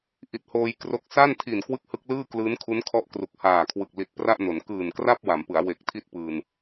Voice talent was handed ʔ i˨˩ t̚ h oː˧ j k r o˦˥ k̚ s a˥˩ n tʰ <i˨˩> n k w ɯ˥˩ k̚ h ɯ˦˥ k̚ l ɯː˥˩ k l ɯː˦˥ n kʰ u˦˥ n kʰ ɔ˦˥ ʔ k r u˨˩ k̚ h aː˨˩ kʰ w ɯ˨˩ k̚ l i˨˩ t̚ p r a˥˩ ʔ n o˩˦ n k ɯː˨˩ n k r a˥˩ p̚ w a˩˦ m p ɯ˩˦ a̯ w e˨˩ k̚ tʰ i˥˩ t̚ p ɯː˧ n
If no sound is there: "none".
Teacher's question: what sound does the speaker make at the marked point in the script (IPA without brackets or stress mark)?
i˨˩